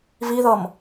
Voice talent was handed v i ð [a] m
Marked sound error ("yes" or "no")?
yes